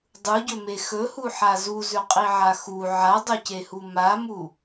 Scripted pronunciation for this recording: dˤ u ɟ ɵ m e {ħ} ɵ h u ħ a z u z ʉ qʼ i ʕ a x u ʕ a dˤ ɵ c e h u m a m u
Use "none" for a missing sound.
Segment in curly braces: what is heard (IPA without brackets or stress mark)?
x